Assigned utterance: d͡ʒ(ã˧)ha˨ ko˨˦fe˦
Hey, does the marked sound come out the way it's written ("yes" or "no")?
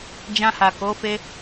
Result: yes